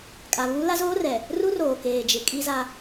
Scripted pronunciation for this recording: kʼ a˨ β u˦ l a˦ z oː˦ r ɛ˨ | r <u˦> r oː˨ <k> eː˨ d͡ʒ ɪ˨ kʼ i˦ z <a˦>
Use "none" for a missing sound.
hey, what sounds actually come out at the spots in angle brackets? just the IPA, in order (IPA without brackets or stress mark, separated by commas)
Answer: u˦, k, a˦